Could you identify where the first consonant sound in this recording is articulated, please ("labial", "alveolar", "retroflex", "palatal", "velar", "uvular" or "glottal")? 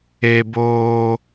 labial